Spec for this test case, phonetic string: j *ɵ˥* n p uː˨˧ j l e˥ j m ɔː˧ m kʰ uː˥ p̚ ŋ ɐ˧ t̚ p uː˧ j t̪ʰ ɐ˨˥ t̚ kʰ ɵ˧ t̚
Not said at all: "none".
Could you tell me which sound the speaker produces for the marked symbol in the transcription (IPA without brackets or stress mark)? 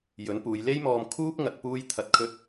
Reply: ɵ˨˥